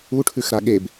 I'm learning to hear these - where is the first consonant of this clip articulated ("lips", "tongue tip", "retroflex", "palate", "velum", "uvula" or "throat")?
retroflex